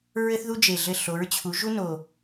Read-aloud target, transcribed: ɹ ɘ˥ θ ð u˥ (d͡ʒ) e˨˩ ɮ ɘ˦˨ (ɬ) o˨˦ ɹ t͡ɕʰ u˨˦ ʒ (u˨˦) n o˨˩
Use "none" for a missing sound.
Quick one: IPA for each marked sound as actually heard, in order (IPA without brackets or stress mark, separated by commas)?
d͡ʒ, ɬ, u˥